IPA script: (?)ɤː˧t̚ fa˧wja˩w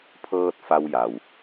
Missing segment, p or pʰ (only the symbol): pʰ